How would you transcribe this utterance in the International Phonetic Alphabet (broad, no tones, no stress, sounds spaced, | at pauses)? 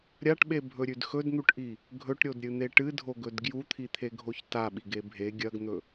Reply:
ɾʲ a ʈ ɓ e bʱ ɵ ɾʲ ʉ d x ɵ d n̪ u ʈ ʔ i | ɡʱ ɵ ʈ ɾʲ o d ɾʲ ɨ n̪ e ʈ ɨ dʱ o ɡ ɵ d ɡ j u t̪ʰ i t̪ʰ e ɡʱ o ç t a ɓ i ɡ e bʱ e ɡʲ ɐ ɡ n̪ ɵ